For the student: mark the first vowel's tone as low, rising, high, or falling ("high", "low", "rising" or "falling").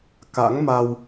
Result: rising